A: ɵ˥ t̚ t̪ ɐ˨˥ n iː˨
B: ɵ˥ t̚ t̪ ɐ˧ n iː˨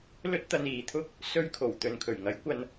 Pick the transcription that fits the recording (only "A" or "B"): B